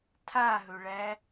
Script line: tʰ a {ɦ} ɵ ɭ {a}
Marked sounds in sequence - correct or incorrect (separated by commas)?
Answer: correct, incorrect